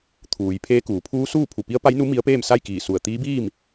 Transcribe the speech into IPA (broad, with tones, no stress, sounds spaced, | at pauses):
t̪ʰ uː˩˧ j pʰ eː˧˥ k uː˩˧ pʰ uː˧˥ s uː˥˨ pʰ u˧˩ p i˧˥ ə̯ p a˧˥ j n u˧˥ m i˧˥ ə̯ p eː˥˨ m s a˥˨ j k iː˧˩ s u˧˩ ə̯ t̪ iː˧˥ b iː˥˨ m